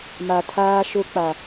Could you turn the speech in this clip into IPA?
m a˨ tʰ aː˦ ʃ ʊ˦ k͡p a˨

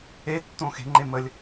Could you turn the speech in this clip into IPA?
e tː õ x e̤ ŋ͡ǃ e m ə lʲ

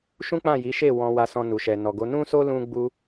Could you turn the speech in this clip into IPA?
ʃ ũ˦ k͡p ã˦˨ j i˨˦ ʃ e˦˨ w ɔ̃˧ w a˧ s ɔ̃˧ n u˨ ʃ ɛ˨ n ɔ˨ ɡ o˨˦ n ũ˦ s o˦ l ũ˦ ɡ͡b u˦

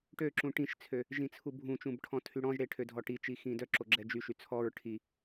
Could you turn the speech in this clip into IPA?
ʈ ø ǁ ũ ʈ ĩ ʃ t͡sʰ ø | ʒ ĩ t͡sʰ u bʱ ũ t͡ʃ ũ b ʈʰ ɔ̃ tʰ y ɽ ɔ̃ ʒ ɽ e ʈʰ ø dʱ ɔ ʈ i t͡ʃ i x ĩ d œ ǁ o ɡ͡ǁ ɛ d͡ʒ y ʃ y t͡sʰ ɔ ɹ ʈʰ i

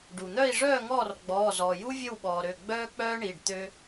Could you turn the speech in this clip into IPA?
ɖ u˩ n̪ œ˥˨ i̯ ʐ œː˥˨ ŋ ɔː˥˨ r ɡ͡b ɔː˩˧˩ z ɔː˩ j u˥ vʲ ə˥˨ w ɓ ɔː˩ ɾ ø˩˧˩ ɡ͡b œː˥ k͡p œː˥ ɳ i˩˧˩ ɖ t̪ ø˧

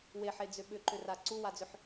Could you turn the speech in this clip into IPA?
w e ħ e d͡z ʏ ɓ ʏ ǃ ʏ r a ǀ u w a d͡z ʏ ħ

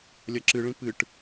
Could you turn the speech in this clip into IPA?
lʲ ɐ ǁ ɨ ɭ ĩ p ɨ ʈ

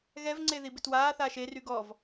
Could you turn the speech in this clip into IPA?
ɣ ɛ v ŋ͡ǀ e ð i b ɪ t w aː θ aː ʃ e r y ɡ ɔ v

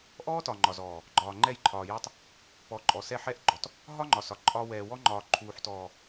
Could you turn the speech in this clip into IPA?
ʔ ɔː˦ t ɒ˨ ŋ͡ǃ ɒ˨ z ɔː˨ | ɡ͡ǃ ɒː˨ ŋ͡ǃ ɛ˦˨ j ǃʰ ɒː˨ j ɛ˦ tˤ | p ɔ˨˦ ǃʼ ɔ˨ s ɛ˦˨ ħ ɛ˦ ʔ ɡ͡ǃ ɔ˨ t | ɦ ɒ˦ ŋ͡ǃ ɒ˨ s ɒ˨ ǃʼ ɒː˦ w ɛː˨ w ɔ˦ ŋ͡ǃ ɒː˨ ǃʰ uː˨ ħ t ɔː˨

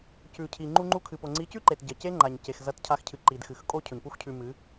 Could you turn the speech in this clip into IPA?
c ʉ˨ cʰ i˨ ŋ͡ǃ u˧ ŋ͡ǃ u˧ kʰ ɨ˨ p o˨ ŋ͡ǀ i˨˦ c ʉ˦ ǃ e˨ t ɟ ɐ˨ c e˦ ŋ͡ǃ a˨ ɲ c e˨ x z ɐ˧ t cʰ a˧ x cʰ ɨ˨ ǃ i˨ d x ɨ˨ x kʼ o˦ cʰ ɵ˨ ɲ p u˦ x cʰ ʉ˧ m ɨ˨˦

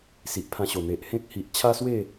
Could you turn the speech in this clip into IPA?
s i˨ ʔ pʰ ã˧ ɕ o˨˩ n̪ e˨ ʔ h ẽ˦ k̚ h i˨ ʔ t͡ɕʰ a˦ s w e˥˧

